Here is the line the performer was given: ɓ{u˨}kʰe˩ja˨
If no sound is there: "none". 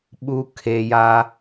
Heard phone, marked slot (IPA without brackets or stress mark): u˨